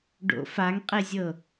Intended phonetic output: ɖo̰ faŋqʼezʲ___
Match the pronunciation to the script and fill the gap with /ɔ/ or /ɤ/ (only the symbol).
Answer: ɤ